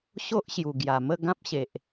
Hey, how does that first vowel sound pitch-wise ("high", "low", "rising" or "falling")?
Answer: high